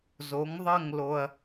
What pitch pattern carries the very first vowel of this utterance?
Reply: rising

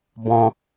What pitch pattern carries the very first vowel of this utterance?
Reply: low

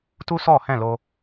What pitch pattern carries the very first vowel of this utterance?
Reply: high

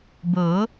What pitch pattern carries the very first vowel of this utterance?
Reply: rising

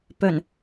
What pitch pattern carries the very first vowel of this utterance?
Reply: low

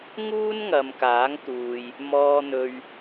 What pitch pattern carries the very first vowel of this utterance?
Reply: high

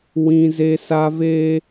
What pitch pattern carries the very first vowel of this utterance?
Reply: high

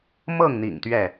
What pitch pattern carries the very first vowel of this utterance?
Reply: falling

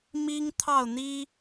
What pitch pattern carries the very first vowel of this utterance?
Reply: high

